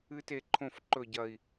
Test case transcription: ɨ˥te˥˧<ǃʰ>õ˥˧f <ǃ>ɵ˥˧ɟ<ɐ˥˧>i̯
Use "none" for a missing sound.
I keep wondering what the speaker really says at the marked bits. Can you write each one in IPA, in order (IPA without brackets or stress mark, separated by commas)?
ǃʰ, ǃ, ɐ˥˧